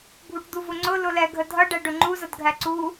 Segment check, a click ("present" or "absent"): present